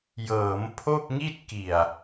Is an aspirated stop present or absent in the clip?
present